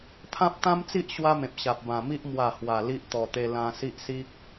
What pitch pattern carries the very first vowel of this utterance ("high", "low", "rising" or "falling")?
high